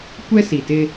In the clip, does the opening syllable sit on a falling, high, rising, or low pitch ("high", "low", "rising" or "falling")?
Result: high